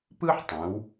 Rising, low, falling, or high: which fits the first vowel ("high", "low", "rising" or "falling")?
high